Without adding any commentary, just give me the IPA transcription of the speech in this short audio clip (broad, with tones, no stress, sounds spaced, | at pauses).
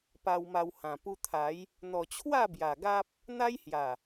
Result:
p a˧ w m a˧ w h ã˨˩ p u˧ t̪ʰ a˨˦ j | n̪ ɔ˨˩ t͡ɕʰ w a˥˧ b j a˨˩ ɡ a˦ p̚ | n̪ a˦ j h j a˨˩